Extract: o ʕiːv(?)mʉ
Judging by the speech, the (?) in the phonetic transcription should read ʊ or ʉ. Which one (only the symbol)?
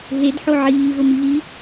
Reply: ʊ